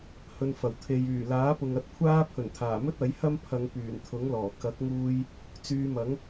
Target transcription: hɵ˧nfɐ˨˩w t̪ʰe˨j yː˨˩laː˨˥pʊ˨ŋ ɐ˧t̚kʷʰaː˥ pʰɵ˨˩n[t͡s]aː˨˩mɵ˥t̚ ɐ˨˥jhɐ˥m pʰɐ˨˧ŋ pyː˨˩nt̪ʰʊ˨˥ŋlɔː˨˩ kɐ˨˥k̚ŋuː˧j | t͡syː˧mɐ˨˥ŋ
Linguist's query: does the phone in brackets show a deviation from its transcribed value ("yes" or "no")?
yes